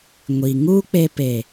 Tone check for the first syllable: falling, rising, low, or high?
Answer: low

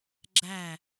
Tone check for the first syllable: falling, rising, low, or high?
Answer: falling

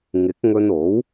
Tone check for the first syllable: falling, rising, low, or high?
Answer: rising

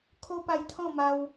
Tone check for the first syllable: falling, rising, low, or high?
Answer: high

